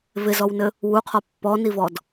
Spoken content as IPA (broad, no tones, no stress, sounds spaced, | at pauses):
v ɪ z ɔ w n ɘ | w u qʰ ɔ pː ɔ n i v ɔ d